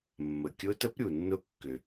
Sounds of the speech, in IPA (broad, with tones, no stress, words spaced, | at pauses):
mːə˩kʲʊ˧˥tə˧˥pɾʲu˩ nːʊ˧˥kːʏ˩